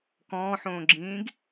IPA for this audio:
k ɔ̃ː ħ õː ɡ͡ǁ ĩː ɡ

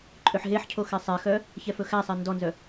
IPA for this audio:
ǃʼ ø ħ ɦ e ħ cʰ o x ɛ sˤ e x œ | ç ɛ f ɵ x æ sˤ ɛ n d ɔ n z œ

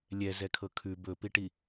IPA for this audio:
lʲ ɛ z ɛ kʰ ɤ kʰ ʉ b ɵ p i ʈ i

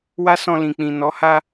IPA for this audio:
w a˦ s ɔ̃˧ l ĩ˨ k͡p ĩ˨ n ɔ˨˦ h a˦

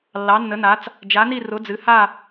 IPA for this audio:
lː ɑ˨˥ nː ə˨˥ n a˨˥ t͡s | d͡ʒ a˨˥ n i˥˧ r ʊ˨˥ d͡z ɨ˨˥ h a˥˧

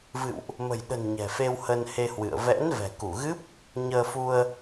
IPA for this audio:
v ɨ̰˧˨ w ʔ | m ə̤˨˩ j ɗ ə̤˨˩ n ɲ ɛ̤˨˩ f e˧ w h ə˧ n h e˧ h w ɨ̰˧˨ ə̯ v ɛ̰˧˥ n v ɛ̤˨˩ k u˧˩ ɣ ɨ˦˥ p̚ | ɲ əː˧ f u˧ ə̯

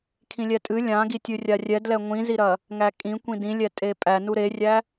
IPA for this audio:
kʰ ĩ lʲ ɛ tʼ ɨ lʲ ã ɡ i tʲ ɨ rʲ a rʲ ɛ d l ɛ ŋʷ ĩ z i ɾ ɐ | ŋ æ kʼ ĩ kʷ ĩ d ĩ lʲ ɛ tʼ e pʼ æ n u ɾ e rʲ æ

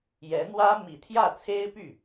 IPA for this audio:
j ɛ˧˥ n̪ w ä˥ m i˨˩ t̪ʰ j ä˥˩ t͡sʰ e˥ ɪ̯ p y˥˩

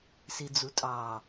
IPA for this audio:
s i d͡z u tʼ ɑ

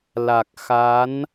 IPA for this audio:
l a˨˩ k̚ x a˨˦ n

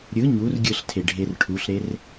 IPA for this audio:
ɾʲ ɯ ɲ u r ɡʲ ɯ ɬ tʰ e ɖʱ e r ʈʰ u ɬ ɾ e r

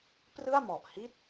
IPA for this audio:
p r ɯ˥˩ a̯ m ɔ˨˩ ʔ h i˥˩ t̚

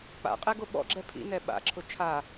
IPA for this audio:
k͡p a̰ qʼ ɛ ɡ o ɓ ɔ̰ ɡ͡ǁ ɛ pʰ ḭ n ɛ ɓ a̰ ǁʰ ʊ t͡ʃʰ a

